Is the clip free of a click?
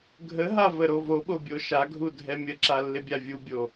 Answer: no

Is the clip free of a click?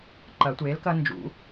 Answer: no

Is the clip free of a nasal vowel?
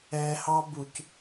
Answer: yes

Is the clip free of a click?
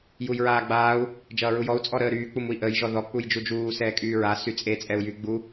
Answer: yes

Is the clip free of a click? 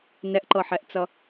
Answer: no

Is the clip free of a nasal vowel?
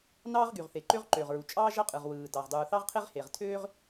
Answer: yes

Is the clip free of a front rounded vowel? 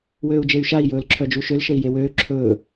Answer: no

